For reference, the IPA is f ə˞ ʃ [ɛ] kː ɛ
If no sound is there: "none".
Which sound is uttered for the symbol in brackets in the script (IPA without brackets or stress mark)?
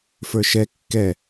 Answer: ɛ